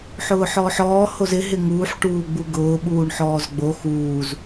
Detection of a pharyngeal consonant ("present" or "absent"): present